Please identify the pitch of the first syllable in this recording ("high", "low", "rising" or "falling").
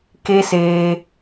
high